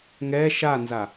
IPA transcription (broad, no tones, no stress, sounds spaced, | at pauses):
ŋ ɛ ʃ a n z a